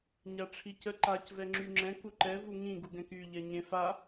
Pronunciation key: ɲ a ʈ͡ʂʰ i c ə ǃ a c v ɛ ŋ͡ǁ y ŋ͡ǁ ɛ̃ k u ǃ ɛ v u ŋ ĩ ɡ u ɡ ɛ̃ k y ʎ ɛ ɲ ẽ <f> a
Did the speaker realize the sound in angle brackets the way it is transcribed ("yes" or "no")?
yes